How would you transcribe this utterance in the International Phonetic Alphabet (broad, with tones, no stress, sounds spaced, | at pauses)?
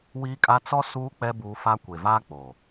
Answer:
w iː˦ kʼ a˦ t͡s ɔ˦ s uː˦ k͡p ɛ˦ b uː˦ f a˦ kʷ e˨ v aː˦ k͡p o˨